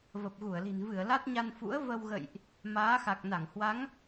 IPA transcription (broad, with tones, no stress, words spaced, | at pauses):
və˨˩p̚ɣu˧˩ə̯li̤˨˩n vɨ˧˩ə̯la˦˥t̚ɲa˧n fṵ˧˥ə̯və˧wɣə̰˧˨jʔ | maː˨˦xa˨˩k̚ na˧˩ŋhwa˨˦ŋ